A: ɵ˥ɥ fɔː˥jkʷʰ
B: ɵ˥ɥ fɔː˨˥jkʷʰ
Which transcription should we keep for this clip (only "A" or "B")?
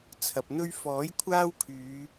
B